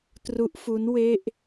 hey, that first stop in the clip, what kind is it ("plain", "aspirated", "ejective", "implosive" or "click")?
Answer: plain